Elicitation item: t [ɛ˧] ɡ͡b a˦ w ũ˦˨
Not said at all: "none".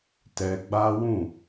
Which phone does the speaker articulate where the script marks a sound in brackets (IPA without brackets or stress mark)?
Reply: ɛ˧